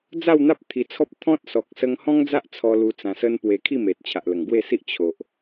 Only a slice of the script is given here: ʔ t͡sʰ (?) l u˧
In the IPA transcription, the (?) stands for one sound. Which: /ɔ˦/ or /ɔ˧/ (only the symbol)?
ɔ˧